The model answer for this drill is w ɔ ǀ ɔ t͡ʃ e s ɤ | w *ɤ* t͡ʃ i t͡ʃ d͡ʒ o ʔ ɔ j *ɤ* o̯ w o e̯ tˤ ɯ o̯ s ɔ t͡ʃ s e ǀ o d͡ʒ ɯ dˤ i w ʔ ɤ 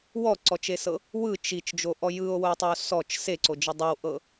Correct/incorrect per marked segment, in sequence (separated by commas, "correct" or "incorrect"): incorrect, incorrect